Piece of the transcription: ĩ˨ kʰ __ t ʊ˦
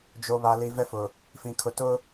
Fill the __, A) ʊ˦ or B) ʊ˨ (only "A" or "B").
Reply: B